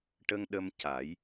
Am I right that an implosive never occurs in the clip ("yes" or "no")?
no